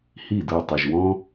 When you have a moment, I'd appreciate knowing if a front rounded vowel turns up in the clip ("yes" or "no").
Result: yes